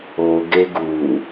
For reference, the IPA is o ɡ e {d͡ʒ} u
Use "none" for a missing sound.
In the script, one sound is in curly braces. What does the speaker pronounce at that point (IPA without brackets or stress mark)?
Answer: ɡ